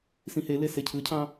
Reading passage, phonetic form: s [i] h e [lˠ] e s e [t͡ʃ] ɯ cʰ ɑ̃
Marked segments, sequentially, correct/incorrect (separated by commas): incorrect, incorrect, incorrect